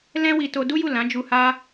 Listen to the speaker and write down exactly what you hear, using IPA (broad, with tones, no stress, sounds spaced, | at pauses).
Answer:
l ɛ̃˦ w i˧ t o˧ d u˦ j u˦˨ l ã˨˦ d͡ʒ u˧ h a˦